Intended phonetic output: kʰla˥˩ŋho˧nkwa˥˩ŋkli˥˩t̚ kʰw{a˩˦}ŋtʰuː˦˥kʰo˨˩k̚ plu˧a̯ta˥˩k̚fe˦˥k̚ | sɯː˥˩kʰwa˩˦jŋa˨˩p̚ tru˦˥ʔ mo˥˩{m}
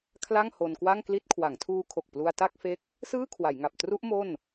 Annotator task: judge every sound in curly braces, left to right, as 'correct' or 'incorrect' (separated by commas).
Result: correct, incorrect